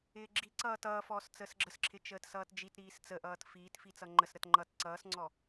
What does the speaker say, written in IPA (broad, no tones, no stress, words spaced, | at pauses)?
ɪːɡ͡ǁiǀʌː tʌːfɔːs t͡səːsɡ͡ǁəsǁʰɪ t͡ʃəːtsʌːtd͡ʒitɾiːs t͡səʔʌːt fiːtfi t͡sʌŋ͡ǃəsɾət ŋ͡ǃʌt ǀʌːsŋ͡ǀɔ